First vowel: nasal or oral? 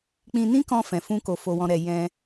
nasal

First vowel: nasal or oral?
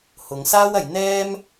oral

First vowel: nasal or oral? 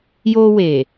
oral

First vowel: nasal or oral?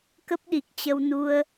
oral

